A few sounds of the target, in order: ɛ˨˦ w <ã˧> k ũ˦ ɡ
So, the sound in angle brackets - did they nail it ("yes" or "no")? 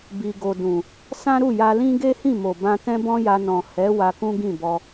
no